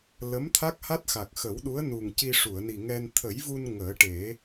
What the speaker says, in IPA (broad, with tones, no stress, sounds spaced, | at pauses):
l ə˧˥ m t̪ʰ a˦˥ k̚ h a˦˥ t̚ x a˨˩ k̚ x ə˨˩˦ w ɗ u˧˥ ə̯ n u˨˩ ŋ c i˧ ʂ u˨˩˨ ə̯ n i˨˩ ŋ ɛ˧ n t̪ʰ ə˨˩˦ j v u˧ n ŋ əː˨˩˦ ʈ e˨˩˦